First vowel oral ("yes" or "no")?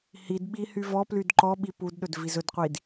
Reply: yes